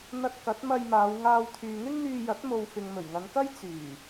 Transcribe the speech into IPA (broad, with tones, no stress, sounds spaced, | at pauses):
n̪ ɐ˥ t̚ k ɐ˨˥ t̚ m ɐ˧ j m aː˨˧ w ŋ aː˧ w t̪ʰ yː˨ ŋ ɪ˥ ŋ n̪ yː˧ j ɐ˨˥ t̚ m o˨ w f ɪ˨ ŋ m ɵ˨˩ ɥ ŋ ɐ˨˧ n k ɐ˥ j t͡s yː˨˩